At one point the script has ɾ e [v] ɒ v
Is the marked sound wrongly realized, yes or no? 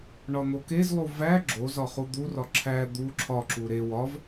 yes